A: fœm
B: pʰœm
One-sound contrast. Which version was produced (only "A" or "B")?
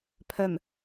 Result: B